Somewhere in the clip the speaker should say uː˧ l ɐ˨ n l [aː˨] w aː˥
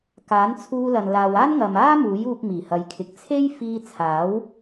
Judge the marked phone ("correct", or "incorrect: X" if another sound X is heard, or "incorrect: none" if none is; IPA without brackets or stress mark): correct